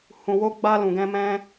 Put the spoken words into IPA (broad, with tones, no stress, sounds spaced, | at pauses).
h ũ˨ w o˧ ɡ͡b a˧ l ũ˨ ɡ ɛ̃˧ m ɛ̃˦